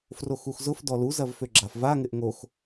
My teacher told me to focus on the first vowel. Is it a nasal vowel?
no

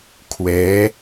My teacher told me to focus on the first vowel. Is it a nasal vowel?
no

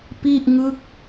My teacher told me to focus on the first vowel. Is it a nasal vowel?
no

